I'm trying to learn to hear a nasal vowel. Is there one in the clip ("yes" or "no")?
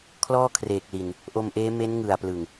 no